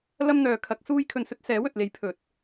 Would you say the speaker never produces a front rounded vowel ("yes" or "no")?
no